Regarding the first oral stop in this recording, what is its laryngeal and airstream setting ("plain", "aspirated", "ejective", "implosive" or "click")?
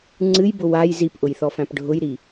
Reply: click